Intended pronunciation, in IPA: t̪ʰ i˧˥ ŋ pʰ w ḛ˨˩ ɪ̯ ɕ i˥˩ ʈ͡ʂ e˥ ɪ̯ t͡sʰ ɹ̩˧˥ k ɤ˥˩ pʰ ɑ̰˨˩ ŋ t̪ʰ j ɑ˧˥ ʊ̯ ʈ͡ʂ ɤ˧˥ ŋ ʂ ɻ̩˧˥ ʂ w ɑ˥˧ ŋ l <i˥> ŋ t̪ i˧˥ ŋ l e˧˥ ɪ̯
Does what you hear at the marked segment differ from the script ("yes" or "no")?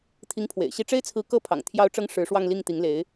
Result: yes